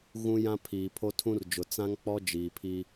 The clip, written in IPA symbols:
ɣ ũ˦ j ã˦ pʰ iː˨ pʰ o˦ tʰ ũ˦ r d͡ʒ ʊ˨ t͡s ã˦ ŋ k͡p ɔ˦ d͡ʒ iː˨ pʰ i˦

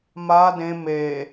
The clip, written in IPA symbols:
m a d ẽ m e

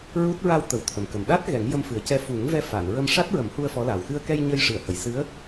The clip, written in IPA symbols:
ɹ u˦˥ t̚ ɹ a˧ w t̪ ə˨˩ w t̪ʰ ə˨˩ m k ə˨˩ m ɗ a˦˥ t̚ ɣ ɛ˨˩˦ ŋ j ə˧ m f ɨ˨˩ ə̯ c ɛ˧ f u˨˩˦ ŋ v ɛ˧ f a˨˩˨ n ɹ ə˧ m ʂ a˦˥ t̚ ɹ ə˨˩˦ m h u˧ ə̯ f ɔ˧˥ l a˨˩ w x ɨ˧ ə̯ k ɛ˧ j ɲ ə˧ j ʂ ɨ˨˩˨ ə̯ h ə˨˩˨ j s ɨ˧˥ ə̯

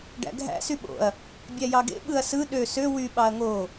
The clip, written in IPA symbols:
ɖ æ̰ ɡʱ æ̰ s y ɓ o̰ ɐ̯ | bʲ æ j ɑ ɡ ḛ ɓ ɯ ɐ̯ s ɯ ɗ ø s ø w y ɓ ɑ ɐ̯ ŋ o

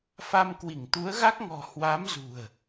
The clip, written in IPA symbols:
f a˧ m k w i˧˩ ŋ t̪ u˨˦ ə̯ ɣ a˦˥ k̚ ŋ ɔ̤˨˩ h w a˨˦ m z ṳ˨˩ ə̯

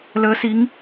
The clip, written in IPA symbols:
l əː˨˦ s i˨˦ ŋ

